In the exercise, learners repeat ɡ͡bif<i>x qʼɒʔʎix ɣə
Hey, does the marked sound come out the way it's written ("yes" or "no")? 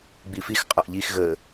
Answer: yes